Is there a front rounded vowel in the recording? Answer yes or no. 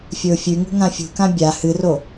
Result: no